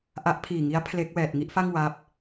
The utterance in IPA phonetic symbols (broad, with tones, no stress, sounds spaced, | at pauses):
ʔ a˦˥ ʔ pʰ iː˨˩ ŋ i˦˥ a̯ pʰ l e˦˥ k̚ w ɛː˨˩ t̚ ŋ i˥˩ ʔ f a˥˩ ŋ w a˦˥ p̚